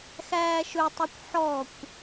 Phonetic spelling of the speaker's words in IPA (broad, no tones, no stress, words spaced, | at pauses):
xæːʃɵtˤɵkʷ ħɔkʷ